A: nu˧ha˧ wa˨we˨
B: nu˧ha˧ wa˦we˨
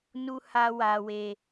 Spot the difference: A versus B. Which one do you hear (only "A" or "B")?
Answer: A